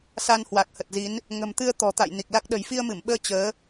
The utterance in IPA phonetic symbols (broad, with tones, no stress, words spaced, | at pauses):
sa˧nhwa˨˩k̚ hə˨˩t̚zi˨˦n | ŋə̤˨˩mt̪ɨ˧ə̯ t̪ɔ̤˨˩t̪a̰˧˨j ni˨˩k̚la˦˥k̚ ɗə̤˨˩jfi˧ə̯mɨ˧˩mɓəː˧ t͡ɕəː˨˦